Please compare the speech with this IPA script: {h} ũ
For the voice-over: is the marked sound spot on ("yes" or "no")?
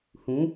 yes